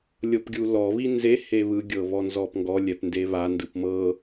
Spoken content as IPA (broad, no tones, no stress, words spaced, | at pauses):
lʲɤpɡʲulɔ βinze heβɯ ɡʲɤβɔnzɔpŋɡɔ lʲɛpndeβa ndɯpmɤ